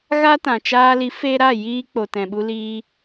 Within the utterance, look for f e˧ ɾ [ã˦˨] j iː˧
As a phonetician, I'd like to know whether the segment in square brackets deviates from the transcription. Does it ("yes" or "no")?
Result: yes